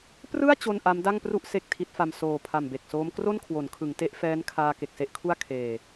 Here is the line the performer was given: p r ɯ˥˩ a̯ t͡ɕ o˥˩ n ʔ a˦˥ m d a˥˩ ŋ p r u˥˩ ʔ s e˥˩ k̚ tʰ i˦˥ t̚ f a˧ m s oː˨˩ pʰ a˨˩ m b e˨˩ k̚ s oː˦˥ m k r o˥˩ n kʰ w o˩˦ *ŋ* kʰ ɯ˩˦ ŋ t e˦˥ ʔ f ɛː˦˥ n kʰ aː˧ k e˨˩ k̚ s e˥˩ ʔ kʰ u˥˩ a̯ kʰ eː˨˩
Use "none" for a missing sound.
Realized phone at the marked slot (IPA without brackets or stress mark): n